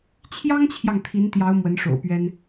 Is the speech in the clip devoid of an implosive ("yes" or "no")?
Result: yes